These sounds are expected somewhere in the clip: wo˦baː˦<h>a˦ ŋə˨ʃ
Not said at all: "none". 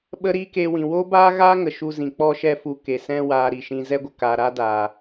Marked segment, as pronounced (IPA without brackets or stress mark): ɣ